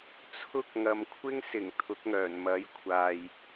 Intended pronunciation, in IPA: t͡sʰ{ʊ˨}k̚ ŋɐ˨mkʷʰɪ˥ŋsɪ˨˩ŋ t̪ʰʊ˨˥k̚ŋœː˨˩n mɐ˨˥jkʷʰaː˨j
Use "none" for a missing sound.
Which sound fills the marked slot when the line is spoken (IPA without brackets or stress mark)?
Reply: ʊ˥